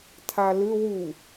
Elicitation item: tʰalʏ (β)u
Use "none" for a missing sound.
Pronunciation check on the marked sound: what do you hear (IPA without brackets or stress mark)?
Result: w